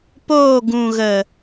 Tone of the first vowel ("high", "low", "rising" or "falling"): falling